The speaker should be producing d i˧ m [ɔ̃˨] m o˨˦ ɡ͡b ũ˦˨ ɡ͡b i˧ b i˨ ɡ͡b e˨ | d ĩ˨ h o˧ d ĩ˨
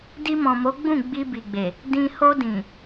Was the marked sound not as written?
no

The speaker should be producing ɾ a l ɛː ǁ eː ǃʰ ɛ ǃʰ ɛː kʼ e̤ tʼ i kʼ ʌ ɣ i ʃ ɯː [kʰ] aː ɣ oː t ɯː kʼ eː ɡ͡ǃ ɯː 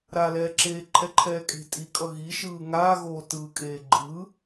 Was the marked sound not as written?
yes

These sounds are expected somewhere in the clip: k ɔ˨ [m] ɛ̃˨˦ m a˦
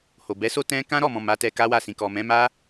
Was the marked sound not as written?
no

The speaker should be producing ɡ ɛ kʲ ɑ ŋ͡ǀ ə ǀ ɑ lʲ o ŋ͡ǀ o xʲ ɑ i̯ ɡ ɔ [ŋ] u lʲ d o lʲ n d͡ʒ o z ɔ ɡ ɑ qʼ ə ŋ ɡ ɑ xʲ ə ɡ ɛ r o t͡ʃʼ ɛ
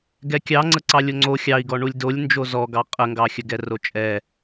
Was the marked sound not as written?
yes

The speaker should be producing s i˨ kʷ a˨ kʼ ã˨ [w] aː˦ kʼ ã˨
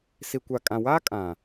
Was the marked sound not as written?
no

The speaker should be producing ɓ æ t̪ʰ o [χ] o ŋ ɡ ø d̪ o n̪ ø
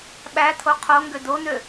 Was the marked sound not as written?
yes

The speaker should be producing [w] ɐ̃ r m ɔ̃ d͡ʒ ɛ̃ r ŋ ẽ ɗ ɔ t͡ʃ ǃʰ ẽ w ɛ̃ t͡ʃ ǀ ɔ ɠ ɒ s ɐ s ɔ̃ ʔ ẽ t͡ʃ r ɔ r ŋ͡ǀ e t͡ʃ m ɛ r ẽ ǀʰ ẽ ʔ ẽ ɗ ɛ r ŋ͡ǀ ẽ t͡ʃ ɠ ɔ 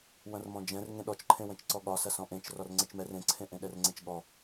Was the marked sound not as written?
no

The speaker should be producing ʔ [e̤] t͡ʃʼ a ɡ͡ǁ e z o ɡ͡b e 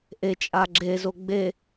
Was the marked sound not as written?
yes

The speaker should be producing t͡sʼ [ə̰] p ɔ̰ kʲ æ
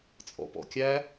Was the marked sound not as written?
yes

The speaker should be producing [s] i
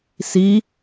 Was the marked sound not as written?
no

